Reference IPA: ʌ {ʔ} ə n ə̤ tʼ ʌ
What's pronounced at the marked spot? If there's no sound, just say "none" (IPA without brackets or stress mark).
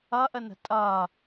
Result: ʔ